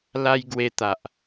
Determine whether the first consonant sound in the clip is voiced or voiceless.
voiced